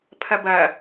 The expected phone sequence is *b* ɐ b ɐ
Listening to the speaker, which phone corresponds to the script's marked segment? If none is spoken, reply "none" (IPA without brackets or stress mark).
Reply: pʰ